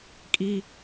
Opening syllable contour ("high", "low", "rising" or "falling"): high